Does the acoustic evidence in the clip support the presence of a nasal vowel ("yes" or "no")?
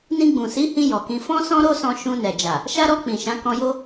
yes